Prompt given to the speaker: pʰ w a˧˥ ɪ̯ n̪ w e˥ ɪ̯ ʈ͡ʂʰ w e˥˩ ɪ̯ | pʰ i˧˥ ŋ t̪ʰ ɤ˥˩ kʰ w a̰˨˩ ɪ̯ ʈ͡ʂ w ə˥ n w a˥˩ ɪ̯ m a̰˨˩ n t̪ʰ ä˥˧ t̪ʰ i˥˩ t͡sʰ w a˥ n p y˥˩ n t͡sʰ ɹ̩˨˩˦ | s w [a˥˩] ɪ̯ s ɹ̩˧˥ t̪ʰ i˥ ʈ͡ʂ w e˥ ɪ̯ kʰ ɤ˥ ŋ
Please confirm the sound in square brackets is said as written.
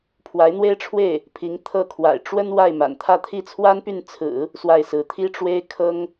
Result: yes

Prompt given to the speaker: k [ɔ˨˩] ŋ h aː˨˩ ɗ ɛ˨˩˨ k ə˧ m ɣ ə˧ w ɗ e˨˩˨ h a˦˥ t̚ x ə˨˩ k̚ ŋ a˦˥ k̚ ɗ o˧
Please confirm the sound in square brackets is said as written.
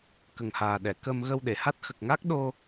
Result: no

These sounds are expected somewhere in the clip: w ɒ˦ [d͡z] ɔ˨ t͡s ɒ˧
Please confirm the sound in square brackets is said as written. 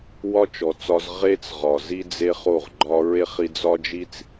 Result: no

